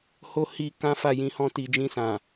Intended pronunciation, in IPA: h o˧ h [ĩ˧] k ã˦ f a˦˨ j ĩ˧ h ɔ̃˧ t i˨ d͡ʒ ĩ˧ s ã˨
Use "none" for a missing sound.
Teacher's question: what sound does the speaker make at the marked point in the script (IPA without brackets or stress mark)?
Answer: i˧